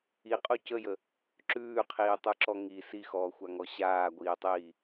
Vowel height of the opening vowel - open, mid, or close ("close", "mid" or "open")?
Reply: close